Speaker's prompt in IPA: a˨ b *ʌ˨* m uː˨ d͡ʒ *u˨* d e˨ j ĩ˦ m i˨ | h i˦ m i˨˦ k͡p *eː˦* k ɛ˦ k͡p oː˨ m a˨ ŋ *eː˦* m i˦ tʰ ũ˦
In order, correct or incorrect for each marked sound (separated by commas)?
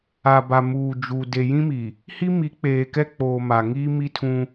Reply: incorrect, correct, incorrect, incorrect